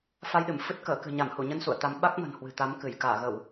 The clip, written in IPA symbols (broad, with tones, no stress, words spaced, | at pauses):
fa˧jɗɨ˧˩mfɨ˦˥t̚ kəː˧˩kɨ̤˨˩ɲa˧˩mhu˧˩ ɲə˧n sṵ˧˨ə̯t̪a˨˦m ɓa˦˥k̚mə̤˨˩n hwɨ̤˨˩t̪a˨˦m kɨ˧˩j kaː˧˩ɣə˧˩˨w